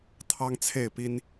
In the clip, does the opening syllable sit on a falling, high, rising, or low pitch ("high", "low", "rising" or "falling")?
high